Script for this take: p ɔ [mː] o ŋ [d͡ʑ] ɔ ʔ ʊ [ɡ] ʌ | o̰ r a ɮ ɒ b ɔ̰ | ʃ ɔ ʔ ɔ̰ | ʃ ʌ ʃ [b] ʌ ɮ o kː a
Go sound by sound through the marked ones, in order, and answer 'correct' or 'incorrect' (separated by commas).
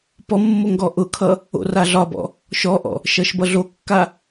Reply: correct, incorrect, incorrect, correct